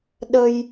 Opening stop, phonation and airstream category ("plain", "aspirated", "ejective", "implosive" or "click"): implosive